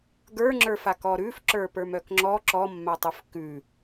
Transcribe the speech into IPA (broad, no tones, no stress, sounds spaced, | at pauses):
ɡ ə˞ ŋ͡ǁ ə˞ f a k ɔ ɾ ʉ f ǁ ə˞ p ə˞ m œ k ŋ͡ǁ ɔ ǁ ɔ mː a tˤ ʉ f k ʉ